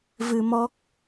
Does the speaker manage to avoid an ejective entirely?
yes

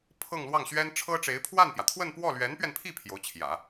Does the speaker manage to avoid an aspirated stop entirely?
no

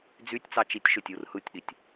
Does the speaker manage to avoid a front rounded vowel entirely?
no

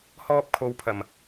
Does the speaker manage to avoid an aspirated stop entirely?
no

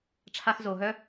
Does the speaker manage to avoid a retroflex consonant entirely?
no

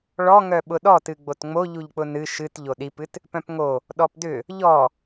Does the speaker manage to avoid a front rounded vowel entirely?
no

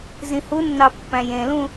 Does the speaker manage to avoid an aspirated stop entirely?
yes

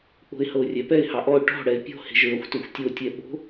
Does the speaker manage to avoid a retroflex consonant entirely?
no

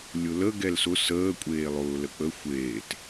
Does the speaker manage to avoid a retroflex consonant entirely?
yes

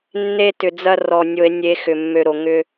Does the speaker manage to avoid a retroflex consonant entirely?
yes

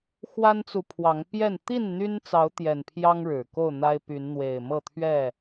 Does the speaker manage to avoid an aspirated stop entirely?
no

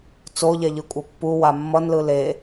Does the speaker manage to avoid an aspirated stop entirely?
yes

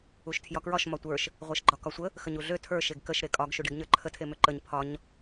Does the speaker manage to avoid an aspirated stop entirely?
no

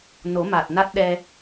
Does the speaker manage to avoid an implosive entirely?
no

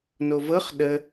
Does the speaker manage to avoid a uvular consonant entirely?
no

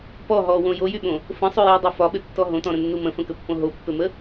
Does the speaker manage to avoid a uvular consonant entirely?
yes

